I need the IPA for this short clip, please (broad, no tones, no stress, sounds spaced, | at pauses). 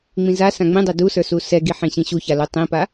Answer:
ŋ͡m ĩ z a s ã ŋ͡m ĩ dˤ ɛ d u s ə˞ s u s ɛ ɡ i ħ ĩ ɕ ĩ ɕ u ç a l u tˤ ĩ p a